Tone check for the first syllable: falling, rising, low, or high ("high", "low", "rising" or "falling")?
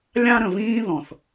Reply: high